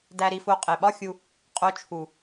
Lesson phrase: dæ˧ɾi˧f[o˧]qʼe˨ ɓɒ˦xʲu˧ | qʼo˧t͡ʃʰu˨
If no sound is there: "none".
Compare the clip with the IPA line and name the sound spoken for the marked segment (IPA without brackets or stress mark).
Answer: o˧